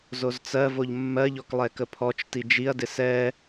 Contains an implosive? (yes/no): no